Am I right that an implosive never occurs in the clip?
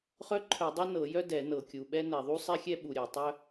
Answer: no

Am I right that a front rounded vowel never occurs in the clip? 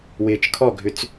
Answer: no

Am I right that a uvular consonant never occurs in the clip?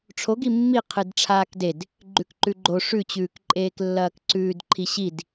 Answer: no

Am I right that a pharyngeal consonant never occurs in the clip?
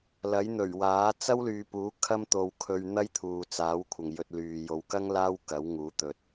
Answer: yes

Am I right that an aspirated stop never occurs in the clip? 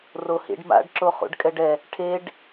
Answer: no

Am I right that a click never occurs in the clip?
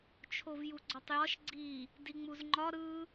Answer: no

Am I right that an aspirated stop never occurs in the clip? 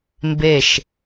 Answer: yes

